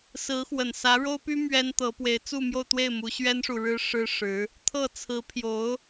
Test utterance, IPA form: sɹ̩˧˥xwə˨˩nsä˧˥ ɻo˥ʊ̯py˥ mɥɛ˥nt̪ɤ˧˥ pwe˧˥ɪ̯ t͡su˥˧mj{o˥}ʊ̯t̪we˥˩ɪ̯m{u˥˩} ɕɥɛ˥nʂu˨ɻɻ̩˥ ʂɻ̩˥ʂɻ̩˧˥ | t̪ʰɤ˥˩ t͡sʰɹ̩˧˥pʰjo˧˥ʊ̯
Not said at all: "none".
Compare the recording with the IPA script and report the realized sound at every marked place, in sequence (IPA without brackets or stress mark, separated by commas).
o˥˧, u˧˥